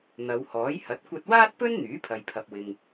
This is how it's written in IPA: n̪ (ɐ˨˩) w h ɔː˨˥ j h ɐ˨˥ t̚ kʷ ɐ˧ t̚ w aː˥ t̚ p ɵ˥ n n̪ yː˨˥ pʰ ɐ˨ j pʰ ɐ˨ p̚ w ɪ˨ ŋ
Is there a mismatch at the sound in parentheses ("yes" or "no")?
yes